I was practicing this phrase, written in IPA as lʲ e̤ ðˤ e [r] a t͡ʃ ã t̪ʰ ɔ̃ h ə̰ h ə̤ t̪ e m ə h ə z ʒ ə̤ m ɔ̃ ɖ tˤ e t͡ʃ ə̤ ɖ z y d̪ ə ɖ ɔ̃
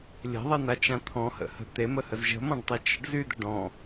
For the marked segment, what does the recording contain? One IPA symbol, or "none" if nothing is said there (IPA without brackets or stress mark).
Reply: n̪